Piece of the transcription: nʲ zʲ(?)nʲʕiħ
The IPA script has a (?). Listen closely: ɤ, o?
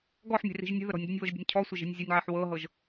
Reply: ɤ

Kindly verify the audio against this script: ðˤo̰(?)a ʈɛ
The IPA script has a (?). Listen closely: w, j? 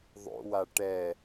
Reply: w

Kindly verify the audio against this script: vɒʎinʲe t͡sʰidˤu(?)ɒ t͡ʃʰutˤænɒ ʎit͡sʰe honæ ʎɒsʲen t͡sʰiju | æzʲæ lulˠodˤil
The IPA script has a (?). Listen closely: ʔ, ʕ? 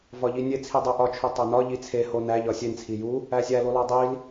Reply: ʔ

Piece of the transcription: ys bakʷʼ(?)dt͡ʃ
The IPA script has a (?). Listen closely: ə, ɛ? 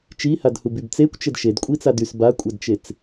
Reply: ɛ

